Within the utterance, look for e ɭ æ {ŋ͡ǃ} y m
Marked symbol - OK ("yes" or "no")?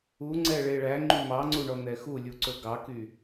yes